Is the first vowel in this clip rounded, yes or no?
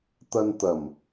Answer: no